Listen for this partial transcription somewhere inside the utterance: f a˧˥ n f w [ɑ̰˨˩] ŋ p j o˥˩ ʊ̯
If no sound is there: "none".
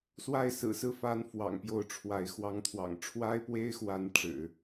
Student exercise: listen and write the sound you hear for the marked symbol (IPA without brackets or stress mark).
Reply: ɑ̰˨˩